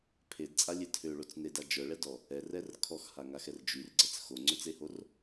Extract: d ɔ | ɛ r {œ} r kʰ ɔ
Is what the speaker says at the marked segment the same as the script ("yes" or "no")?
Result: no